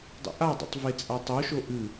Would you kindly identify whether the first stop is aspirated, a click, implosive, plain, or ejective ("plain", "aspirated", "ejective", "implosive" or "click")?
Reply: plain